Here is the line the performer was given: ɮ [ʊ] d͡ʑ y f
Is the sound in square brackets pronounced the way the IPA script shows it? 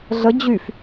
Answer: no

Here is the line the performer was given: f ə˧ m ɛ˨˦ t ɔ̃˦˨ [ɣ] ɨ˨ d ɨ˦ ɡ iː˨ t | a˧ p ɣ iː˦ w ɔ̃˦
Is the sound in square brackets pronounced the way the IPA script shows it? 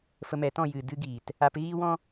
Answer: no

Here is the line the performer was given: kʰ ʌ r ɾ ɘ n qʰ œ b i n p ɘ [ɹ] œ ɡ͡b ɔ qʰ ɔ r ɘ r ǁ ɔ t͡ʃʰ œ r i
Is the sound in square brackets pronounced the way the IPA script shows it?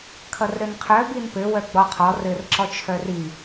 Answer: no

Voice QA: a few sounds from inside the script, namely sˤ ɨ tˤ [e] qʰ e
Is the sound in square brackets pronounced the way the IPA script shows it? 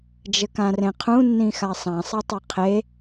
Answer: no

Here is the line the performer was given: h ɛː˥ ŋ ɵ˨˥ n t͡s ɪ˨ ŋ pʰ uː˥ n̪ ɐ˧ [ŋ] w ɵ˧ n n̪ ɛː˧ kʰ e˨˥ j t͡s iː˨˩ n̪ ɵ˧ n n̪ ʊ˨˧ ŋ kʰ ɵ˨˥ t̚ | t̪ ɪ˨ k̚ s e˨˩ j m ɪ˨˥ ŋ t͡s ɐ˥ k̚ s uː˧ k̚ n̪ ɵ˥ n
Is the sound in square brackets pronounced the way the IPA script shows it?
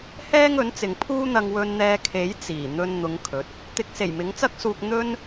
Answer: yes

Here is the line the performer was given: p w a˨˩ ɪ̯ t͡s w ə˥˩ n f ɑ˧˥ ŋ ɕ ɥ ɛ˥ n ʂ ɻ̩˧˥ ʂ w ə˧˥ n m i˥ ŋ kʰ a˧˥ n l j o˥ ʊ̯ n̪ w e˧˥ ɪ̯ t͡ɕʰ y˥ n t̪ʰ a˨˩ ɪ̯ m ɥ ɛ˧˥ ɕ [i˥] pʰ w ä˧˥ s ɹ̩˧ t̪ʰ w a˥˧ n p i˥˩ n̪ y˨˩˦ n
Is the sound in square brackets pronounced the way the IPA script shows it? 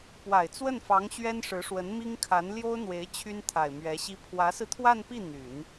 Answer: yes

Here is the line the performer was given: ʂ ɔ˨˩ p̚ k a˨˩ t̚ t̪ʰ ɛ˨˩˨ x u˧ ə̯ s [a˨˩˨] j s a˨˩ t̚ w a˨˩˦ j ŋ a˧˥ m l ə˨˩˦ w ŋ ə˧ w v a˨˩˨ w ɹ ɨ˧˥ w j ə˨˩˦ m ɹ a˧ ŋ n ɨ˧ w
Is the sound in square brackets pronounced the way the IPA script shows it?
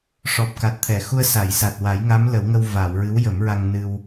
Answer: yes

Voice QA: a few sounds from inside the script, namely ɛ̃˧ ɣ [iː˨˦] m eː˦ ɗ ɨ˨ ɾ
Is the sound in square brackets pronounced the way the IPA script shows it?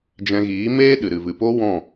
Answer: yes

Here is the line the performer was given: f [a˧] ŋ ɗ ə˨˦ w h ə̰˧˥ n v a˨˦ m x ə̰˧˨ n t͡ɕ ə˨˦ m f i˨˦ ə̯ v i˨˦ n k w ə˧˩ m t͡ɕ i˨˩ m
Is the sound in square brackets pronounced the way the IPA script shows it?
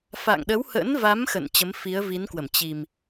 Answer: no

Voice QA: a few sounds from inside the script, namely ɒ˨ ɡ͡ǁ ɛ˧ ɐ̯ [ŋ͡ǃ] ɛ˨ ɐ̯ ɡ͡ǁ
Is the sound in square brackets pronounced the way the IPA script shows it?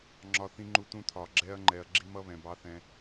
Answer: yes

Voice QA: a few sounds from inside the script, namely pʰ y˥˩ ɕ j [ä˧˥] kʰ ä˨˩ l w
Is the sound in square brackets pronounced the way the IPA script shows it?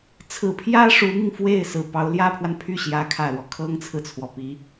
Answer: yes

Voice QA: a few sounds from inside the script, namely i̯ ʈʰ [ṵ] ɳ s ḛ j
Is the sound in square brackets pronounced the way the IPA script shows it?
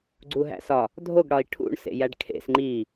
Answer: yes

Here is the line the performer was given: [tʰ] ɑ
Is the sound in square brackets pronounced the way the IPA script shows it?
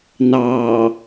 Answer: no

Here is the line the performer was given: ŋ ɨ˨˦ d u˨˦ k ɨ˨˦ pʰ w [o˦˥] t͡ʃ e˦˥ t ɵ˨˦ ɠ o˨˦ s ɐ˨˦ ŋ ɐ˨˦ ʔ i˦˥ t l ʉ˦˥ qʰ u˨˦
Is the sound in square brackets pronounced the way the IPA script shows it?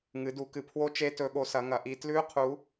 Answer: yes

